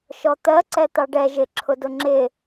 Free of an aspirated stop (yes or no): no